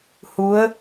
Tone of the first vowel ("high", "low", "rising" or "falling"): rising